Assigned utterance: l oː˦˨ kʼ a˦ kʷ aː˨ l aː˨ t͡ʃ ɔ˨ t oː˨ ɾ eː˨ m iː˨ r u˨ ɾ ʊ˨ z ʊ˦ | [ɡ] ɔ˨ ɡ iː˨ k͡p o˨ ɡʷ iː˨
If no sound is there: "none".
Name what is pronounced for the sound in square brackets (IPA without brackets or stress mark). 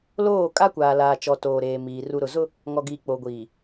ŋ